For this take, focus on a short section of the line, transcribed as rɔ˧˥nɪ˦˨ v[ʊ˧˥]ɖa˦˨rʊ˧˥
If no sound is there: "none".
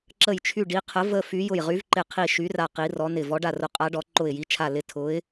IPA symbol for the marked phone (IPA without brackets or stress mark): ɔ˧˥